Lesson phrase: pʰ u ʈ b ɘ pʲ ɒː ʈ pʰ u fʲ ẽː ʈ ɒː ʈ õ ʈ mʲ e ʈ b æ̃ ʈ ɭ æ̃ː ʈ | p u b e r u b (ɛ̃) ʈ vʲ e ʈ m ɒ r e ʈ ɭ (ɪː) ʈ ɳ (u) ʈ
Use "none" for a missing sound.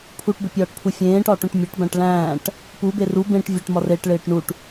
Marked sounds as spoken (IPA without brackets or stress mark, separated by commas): ẽ, ɪː, u